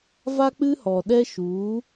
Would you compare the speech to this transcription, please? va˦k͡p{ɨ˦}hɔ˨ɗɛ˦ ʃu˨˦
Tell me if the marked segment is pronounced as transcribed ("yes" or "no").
yes